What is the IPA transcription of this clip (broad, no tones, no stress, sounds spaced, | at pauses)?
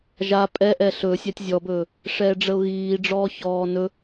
ʒ a pʼ ɛ ʔ ɛ ɬ ɵ sʲ æ tʲ zʲ ɔ b ɵː | ʂ ɛː ɖ͡ʐ ə ʊ̯ ɣ iː ɖ͡ʐ ɔː ç ɔː n ɵ